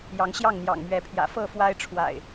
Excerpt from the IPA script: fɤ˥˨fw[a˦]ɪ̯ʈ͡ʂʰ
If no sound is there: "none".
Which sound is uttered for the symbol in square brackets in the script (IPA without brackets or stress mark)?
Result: a˦